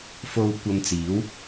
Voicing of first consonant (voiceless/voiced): voiceless